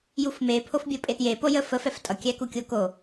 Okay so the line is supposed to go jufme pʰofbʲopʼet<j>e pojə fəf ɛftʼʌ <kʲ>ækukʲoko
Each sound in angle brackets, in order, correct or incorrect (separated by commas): correct, correct